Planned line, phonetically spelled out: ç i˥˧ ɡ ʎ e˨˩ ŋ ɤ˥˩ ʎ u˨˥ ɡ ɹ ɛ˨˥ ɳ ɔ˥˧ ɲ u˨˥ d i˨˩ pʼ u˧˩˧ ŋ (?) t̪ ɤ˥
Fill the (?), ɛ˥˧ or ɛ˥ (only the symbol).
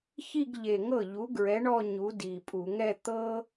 ɛ˥˧